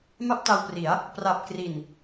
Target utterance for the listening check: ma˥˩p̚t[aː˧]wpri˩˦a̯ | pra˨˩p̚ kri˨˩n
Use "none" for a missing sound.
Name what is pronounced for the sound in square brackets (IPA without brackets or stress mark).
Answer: a˧